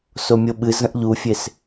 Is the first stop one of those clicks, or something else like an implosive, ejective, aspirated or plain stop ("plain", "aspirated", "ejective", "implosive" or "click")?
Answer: implosive